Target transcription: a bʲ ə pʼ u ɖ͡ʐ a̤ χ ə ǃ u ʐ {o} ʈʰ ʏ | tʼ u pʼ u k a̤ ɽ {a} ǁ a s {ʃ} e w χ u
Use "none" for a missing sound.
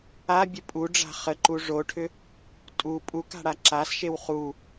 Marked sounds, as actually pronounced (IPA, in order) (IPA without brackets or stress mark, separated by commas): o, a, ʃ